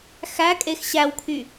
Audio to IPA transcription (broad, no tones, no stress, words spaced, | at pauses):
xækʼex ɕæwkʰy